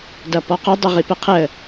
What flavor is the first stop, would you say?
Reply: plain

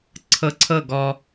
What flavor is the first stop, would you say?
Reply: click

